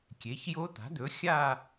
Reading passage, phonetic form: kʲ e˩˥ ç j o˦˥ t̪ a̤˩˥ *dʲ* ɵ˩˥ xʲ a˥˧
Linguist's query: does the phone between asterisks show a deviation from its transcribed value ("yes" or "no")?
yes